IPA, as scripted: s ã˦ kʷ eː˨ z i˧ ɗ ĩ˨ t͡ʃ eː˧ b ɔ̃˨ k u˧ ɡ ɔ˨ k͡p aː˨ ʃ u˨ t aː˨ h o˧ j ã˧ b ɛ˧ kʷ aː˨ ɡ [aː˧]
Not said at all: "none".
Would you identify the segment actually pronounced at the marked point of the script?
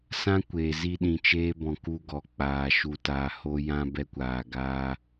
aː˧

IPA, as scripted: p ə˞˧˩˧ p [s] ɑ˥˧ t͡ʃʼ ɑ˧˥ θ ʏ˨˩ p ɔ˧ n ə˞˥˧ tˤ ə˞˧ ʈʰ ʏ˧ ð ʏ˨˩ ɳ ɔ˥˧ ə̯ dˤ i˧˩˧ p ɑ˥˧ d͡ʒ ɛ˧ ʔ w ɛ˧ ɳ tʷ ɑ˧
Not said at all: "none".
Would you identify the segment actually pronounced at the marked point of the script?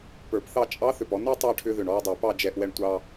θ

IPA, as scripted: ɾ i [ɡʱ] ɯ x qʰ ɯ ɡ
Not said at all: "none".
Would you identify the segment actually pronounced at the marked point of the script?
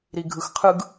ɡʱ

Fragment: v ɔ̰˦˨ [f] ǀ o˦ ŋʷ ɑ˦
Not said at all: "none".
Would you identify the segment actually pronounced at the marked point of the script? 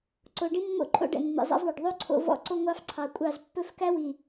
none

